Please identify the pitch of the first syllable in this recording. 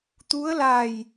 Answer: rising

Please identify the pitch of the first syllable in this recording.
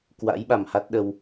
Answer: rising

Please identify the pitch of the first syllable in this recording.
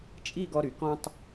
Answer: falling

